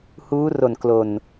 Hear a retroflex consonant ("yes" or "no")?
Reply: no